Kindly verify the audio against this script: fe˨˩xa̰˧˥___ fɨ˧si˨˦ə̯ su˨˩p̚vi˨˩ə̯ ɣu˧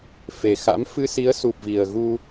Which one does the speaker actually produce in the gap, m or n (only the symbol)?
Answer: m